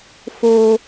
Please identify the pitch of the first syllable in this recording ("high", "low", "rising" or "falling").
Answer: high